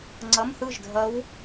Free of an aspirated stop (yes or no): yes